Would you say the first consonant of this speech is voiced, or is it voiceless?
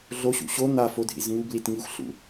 voiced